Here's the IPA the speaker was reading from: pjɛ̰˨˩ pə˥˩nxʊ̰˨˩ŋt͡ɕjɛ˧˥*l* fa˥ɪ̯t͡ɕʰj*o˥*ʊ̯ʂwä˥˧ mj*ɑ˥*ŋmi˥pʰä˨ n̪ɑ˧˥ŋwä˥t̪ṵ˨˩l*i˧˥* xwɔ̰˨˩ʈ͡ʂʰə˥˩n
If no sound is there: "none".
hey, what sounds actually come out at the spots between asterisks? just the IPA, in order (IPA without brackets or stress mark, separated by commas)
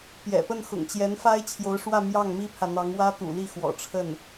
n, o˧˥, ɑ˥˩, i˥˩